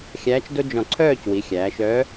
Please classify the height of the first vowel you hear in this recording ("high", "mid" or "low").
low